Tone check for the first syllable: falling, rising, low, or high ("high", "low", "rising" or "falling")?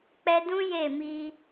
high